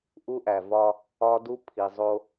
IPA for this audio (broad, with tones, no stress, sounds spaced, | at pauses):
ʔ u˦ ʔ æ˨ v ɒ˦ | ɒ˦ d u˦ pʰ i˨ zˤ o˦